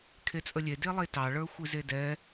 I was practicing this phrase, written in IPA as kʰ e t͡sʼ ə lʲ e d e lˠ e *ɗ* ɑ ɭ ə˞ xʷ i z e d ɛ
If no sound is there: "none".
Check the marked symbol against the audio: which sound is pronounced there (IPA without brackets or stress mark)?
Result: t